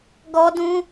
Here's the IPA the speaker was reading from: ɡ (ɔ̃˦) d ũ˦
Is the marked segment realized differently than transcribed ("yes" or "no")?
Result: yes